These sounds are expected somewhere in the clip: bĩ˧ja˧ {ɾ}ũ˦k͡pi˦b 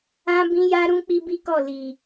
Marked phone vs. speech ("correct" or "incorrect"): correct